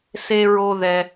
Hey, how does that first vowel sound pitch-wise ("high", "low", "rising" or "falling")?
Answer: high